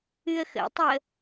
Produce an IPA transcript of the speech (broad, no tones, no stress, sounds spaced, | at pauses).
ɨ ə̯ x ə̰ tˤ ə